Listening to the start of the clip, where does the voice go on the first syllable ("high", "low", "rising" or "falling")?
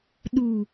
low